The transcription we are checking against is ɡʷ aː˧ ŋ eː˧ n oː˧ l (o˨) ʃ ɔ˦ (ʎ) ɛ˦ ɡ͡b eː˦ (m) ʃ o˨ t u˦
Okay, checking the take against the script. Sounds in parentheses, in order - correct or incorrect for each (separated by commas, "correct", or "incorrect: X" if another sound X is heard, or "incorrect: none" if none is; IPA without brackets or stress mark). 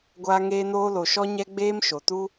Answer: correct, incorrect: ɲ, correct